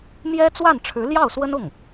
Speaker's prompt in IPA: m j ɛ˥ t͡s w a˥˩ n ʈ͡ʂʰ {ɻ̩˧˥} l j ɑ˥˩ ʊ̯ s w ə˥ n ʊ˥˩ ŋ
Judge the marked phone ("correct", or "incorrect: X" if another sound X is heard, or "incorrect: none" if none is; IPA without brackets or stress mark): correct